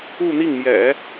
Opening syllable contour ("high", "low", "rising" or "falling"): falling